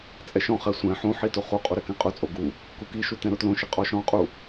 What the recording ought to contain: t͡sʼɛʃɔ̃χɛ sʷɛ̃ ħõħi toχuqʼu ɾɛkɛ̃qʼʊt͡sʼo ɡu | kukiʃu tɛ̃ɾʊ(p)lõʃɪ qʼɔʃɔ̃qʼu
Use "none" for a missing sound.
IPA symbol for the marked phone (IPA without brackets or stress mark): t